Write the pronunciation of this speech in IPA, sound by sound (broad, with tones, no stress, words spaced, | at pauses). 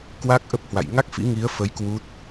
kwa˦˥k̚ʔə˦˥p̚hwa̰˧˨j ŋa˦˥k̚fḭ˧˥ŋi˨˦ə̯fə˨˦j kwu˦˥t̚